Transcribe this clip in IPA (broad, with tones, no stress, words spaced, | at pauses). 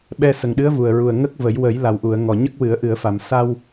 ɓɛ˧sə˨˩ŋɗɨ˧˥ə̯ vu˨˩ə̯ɹu˨˩ə̯ ŋə˦˥k̚ və˨˩˦j wə˨˩˦jla˨˩wʔu˨˩˨ə̯ ŋɔ˨˩ɲə˦˥k̚wɨ˨˩˦ə̯ ʔɨ˨˩˨ə̯fa˨˩˨m sa˧w